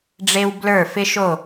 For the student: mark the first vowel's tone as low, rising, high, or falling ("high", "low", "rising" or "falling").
high